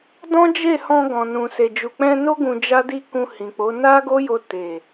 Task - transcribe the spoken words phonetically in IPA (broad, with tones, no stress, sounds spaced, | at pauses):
d ɔ̃˦ d͡ʒ e˦˨ h ɔ̃˧ ɡ ɔ̃˨ n ũ˨ s e˨ d͡ʒ u˨ k͡p ɛ̃˧ n o˦ ɡ ũ˧ d͡ʒ a˦ d i˦ k ũ˧ h ĩ˨ k͡p o˨˦ n a˦ ɡ o˦ j o˧ t e˨